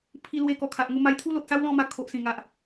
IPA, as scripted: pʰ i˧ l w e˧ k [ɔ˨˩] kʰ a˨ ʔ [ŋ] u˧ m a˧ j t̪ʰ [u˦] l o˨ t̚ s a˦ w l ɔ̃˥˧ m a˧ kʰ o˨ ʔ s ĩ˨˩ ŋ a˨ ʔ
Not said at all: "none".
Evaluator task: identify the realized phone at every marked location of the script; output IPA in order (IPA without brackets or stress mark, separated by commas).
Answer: ɔ˨˩, ŋ, u˦